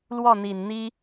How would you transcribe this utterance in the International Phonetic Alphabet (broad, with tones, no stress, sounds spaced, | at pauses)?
l w ɔ˥˩ n̪ i˨˩ n n̪ i˥